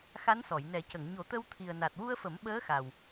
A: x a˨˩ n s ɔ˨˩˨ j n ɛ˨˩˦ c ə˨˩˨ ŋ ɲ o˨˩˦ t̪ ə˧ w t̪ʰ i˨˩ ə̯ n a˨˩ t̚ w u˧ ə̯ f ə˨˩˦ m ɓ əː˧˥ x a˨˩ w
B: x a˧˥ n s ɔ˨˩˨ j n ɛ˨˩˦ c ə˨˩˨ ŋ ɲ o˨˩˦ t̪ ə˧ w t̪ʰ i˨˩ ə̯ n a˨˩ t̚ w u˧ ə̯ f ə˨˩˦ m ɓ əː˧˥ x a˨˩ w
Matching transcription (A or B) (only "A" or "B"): B